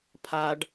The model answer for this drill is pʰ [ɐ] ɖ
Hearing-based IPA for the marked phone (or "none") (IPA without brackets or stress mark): a